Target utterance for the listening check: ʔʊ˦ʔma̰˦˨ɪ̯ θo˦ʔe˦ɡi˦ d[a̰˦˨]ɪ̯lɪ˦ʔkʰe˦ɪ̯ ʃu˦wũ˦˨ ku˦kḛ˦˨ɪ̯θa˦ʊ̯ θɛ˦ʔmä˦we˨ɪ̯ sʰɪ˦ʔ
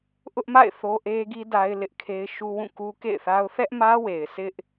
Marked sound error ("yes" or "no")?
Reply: yes